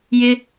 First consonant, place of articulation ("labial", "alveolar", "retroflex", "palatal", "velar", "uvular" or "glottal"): palatal